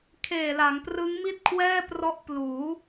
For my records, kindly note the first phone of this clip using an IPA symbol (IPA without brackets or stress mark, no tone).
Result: kʰ